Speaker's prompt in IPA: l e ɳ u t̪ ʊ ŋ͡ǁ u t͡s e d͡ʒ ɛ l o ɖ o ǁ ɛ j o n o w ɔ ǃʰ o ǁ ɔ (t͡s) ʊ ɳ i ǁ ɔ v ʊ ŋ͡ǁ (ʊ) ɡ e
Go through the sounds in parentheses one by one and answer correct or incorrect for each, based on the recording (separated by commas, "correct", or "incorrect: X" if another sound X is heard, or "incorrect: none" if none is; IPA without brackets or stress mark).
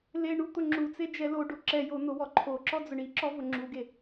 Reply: incorrect: d͡z, incorrect: u